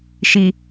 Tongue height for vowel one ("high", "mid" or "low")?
high